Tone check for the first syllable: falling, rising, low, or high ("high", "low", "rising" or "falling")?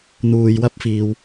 low